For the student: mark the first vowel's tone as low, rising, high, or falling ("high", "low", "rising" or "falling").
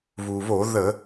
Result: low